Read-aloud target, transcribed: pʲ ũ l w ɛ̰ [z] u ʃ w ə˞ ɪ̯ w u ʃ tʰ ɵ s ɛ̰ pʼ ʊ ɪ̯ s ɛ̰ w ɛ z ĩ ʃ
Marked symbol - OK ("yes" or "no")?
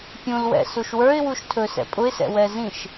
no